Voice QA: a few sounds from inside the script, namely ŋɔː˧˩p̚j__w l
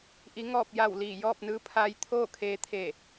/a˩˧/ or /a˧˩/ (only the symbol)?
a˧˩